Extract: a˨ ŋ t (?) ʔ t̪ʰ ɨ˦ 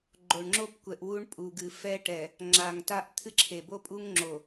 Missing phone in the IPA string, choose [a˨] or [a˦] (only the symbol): a˦